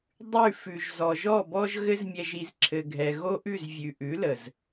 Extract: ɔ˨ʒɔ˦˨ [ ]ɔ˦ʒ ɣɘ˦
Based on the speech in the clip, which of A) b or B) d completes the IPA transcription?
A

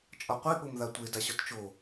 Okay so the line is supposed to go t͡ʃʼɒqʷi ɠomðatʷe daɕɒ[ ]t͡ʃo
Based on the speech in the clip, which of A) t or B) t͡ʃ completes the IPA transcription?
A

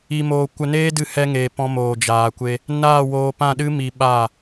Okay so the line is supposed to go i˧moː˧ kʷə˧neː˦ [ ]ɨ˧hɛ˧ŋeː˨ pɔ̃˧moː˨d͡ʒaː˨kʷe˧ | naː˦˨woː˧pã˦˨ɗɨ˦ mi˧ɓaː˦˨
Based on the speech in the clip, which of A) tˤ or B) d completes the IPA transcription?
B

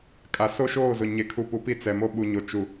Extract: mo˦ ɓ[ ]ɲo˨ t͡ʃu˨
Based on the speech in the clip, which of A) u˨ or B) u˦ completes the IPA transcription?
A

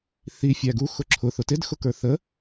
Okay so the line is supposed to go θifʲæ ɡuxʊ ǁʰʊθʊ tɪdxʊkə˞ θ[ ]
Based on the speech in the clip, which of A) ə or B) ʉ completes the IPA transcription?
A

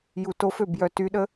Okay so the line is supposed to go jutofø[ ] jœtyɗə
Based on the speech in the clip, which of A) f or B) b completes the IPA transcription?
B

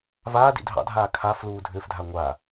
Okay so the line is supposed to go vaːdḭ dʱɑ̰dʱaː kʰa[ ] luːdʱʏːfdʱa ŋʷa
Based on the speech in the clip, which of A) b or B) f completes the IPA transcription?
B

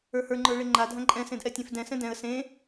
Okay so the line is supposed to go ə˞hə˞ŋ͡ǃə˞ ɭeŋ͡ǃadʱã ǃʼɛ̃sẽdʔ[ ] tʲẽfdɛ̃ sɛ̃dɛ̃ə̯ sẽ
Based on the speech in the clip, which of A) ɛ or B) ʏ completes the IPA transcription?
A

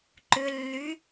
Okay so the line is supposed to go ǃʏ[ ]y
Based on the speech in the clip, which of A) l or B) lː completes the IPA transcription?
B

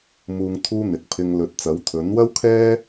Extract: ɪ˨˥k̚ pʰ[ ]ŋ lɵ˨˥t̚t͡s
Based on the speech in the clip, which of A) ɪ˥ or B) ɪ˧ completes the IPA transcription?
B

